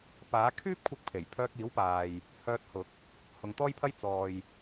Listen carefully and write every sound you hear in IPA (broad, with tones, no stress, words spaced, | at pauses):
paː˨˥ kʰyː˥p̚kʷʰɪ˧k̚pʰe˨˩j pʰœː˧k̚iː˨˥wpaː˨j | hœː˧t̚hʊ˨˥k̚ | hʊ˨ŋt̪ɔː˥jpʰɐ˥j t͡sɔː˨j